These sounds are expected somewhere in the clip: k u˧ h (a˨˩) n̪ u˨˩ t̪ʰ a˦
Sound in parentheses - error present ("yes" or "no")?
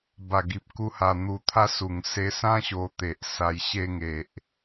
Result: no